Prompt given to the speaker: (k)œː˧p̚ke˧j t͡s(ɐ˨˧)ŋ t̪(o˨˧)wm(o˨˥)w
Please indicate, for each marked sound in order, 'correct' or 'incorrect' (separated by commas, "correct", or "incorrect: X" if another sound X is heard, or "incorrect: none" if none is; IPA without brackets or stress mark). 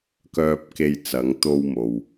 correct, correct, incorrect: o˧, incorrect: o˨